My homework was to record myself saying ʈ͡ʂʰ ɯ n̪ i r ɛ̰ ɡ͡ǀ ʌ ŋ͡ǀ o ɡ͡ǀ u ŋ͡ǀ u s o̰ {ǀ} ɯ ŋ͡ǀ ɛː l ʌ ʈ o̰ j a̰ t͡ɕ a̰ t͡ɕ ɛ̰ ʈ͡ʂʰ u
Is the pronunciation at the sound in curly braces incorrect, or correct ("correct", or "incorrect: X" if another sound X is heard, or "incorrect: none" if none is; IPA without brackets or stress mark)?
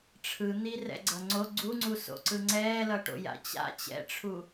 correct